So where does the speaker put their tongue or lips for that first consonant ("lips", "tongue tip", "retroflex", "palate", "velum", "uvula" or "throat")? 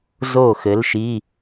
tongue tip